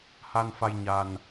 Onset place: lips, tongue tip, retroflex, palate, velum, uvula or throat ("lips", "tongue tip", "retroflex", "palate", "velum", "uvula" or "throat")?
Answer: throat